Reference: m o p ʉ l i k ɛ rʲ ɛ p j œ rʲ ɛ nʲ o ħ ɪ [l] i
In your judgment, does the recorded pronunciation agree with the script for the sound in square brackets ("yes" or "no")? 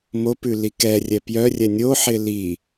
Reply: yes